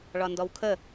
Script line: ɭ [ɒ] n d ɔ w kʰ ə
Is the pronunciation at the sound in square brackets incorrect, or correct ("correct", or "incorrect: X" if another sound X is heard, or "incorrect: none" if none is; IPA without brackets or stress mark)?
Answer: correct